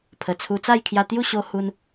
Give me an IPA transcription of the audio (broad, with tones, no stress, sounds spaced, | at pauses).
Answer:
pʰ ə˨˩ t͡sʰ u˧ t͡s a˥˧ j kʰ j a˧ t̪ j u˥˧ ɕ o˧ h u˧ n